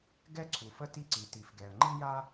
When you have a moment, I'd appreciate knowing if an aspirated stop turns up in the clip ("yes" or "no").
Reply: yes